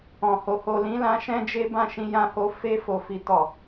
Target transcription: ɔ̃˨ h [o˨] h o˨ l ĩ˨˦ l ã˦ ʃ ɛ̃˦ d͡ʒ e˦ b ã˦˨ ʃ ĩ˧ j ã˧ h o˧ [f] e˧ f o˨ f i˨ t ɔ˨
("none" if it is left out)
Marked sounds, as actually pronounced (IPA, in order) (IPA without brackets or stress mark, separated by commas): o˨, f